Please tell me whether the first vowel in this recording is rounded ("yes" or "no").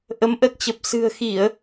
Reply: no